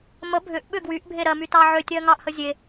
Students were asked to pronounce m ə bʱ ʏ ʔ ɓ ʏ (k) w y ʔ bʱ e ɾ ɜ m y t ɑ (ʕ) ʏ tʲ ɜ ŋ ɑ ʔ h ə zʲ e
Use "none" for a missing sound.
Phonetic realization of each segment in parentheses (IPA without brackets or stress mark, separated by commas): ɡ, ʕ